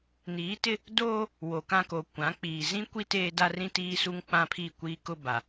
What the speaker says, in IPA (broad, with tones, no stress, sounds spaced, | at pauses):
n iː˨˦ t ɪ˦ | d oː˦ | w o˨ k ã˦ k o˨ kʷ ã˨˦ k͡p iː˨ z ĩ˦ kʷ i˦ t eː˦ d a˦ r ĩ˦ t iː˦ s u˦ ŋ k͡p ã˦ pʰ i˦˨ kʷ iː˦ k ʊ˦ b a˨